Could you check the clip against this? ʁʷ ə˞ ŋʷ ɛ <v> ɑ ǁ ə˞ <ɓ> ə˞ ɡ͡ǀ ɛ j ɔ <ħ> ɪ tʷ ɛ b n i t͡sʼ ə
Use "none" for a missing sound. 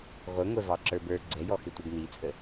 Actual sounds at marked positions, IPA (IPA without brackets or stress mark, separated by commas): v, b, x